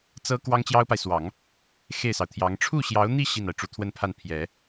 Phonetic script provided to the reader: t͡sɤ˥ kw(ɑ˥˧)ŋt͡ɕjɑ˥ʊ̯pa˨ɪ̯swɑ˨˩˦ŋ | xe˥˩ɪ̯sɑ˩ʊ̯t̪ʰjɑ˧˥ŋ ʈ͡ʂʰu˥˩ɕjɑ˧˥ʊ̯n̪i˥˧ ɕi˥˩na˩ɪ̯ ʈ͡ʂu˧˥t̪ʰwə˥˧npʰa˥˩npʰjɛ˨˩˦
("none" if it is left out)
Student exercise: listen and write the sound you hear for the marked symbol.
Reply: ɑ˥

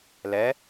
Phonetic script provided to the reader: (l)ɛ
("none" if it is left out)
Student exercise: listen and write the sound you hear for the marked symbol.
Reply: l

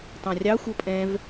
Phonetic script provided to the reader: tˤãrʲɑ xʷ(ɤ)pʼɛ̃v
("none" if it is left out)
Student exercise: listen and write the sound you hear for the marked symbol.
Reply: ɤ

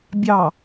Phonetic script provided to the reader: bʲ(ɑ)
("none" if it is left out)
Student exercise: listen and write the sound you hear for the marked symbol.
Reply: ɑ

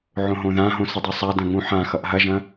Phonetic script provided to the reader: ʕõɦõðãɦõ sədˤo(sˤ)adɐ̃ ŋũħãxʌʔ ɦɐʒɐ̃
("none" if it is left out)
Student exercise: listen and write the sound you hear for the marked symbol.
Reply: sˤ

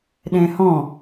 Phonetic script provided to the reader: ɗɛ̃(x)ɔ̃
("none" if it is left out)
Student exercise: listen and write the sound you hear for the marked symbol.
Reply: h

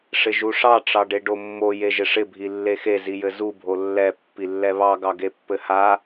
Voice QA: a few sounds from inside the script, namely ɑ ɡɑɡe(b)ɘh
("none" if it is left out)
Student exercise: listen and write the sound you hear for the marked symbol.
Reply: pː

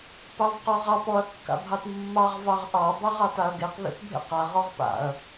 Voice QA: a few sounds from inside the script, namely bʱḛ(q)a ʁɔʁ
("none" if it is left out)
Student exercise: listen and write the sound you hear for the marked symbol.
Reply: q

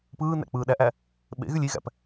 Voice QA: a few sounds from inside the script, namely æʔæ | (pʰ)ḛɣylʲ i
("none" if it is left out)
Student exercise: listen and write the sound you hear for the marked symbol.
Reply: ɓ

